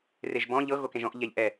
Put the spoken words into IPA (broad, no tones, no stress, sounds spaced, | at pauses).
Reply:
r e ʒ b ɔ̃ ʎ ɤ ɣ o k ẽ ʒ ɔ̃ ʔ ʎ ɛ ʎ ʔ ɛ